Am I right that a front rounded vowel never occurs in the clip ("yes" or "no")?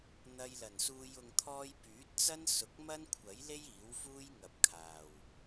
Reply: no